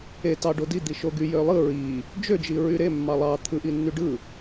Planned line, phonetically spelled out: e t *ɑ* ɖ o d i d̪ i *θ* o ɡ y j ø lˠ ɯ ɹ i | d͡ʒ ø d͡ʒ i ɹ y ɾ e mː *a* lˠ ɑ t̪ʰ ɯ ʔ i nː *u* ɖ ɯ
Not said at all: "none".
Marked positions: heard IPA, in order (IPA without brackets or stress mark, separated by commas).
ɑ, ʃ, ɑ, y